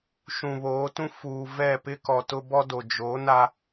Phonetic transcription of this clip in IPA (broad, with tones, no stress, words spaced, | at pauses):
ʃũ˨βoː˨˦tũ˦ fuː˨vɛ˦˨pɪ˦ kɔ˨tʊ˦bɔ˦do˨ d͡ʒo˨˦na˦